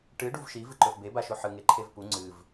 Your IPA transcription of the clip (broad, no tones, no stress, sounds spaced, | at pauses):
ʈ ɨ ɖ u v ʃ i v ɨ ǃ ɵ v b e b a ʃ o ħ ɨ ŋ e ǃʰ e v p u ŋ͡ǀ ɨ v